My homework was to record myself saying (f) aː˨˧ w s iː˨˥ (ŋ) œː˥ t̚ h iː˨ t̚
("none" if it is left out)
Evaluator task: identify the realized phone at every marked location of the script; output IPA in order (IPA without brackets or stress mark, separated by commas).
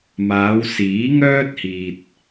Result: m, ŋ